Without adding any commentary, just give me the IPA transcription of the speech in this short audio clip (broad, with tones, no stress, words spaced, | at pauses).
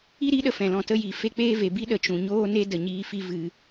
i˦ɾi˨˦ɗə˨ fɛ̃˨lɔ̃˧tə˦ji˨ fe˦k͡peː˦ve˨ bi˦ɗə˨t͡ʃũ˨ ɲoː˦ne˦də˨ ɲiː˧ fi˦vɨ˧